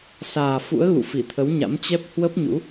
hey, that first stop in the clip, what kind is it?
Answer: aspirated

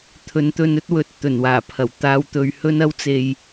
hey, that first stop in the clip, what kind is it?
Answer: aspirated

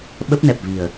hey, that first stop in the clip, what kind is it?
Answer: implosive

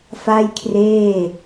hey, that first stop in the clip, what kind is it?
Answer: aspirated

